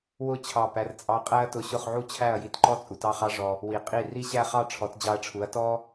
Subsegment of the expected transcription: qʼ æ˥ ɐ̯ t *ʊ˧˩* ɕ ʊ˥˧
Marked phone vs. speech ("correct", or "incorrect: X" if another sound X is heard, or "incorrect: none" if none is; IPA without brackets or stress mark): correct